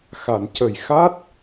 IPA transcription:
xa˨˩˨n cə˨˩jxa˦˥t̚

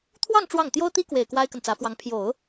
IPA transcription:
t̪ʰwɑ˥˧ŋ ʈ͡ʂwɑ˥˩ŋ t̪jo˥ʊ̯t̪i˥kwe˨˩ɪ̯ kwa˥ɪ̯kə˨nt͡sä˧˥fwɑ˧˥ŋ pʰjo˨˩˦ʊ̯

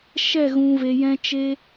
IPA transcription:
ʃɛ˦˨ɣũ˨ve˨jɛ̃˧ t͡ʃe˧

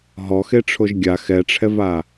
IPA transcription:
ɦɔxeʈ͡ʂʰoʒ ɡʲa xɛʈ͡ʂʰɛva

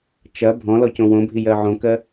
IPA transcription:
t͡ʃɐ bʱɔ̃lɔ cõwõbʱi jɜʕõkɜ

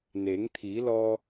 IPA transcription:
neː˩˧ŋt̪ʰiː˩˧lɔː˧

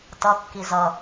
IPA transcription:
tʌkːi zʌ

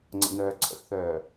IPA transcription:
ŋ͡ǀə̰˨nœː˨ ǀʰə̰˨xθœː˨

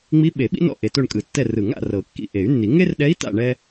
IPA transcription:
ŋ͡mi˧˥ɓe˨˩˦ɓḭ˥nɔ̰˦˨ ʔe˨to˦˨ɳkʼɯ˨˩˦tːɛ˦˨ rɯ˨˩˦ŋa̰˨ rɤ˨˩˦kːḭ˦˨ ʔe˨˩˦y̯nːi˨˩˦ ŋe˥rɗɛ˧˥i̯ta̰˦˨ ɳɛ˥

